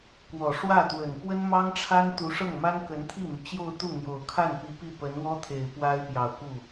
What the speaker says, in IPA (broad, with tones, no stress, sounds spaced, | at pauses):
k w ɔ˨˩ ʂ w ä˥˩ t̪ w ə˨˩ n p w ə˥ n m ɑ˥ ŋ ʈ͡ʂʰ a˥ n t̪ u˧˥ ʂ ɤ˥˩ ŋ m a˥ n k ə˧˥ n t̪ʰ i˥˩ m y˩ t͡ɕ j o˥˧ ʊ̯ t̪ u˥˩ n̪ j o˨˩ ʊ̯ kʰ a˥˩ n p i˧˥ p i˥˩ p ə˧˥ n w ɔ˥ t̪ʰ e˨˩ ɪ̯ p w a˥ ɪ̯ p j ɑ˨˩ ʊ̯ k u˥˩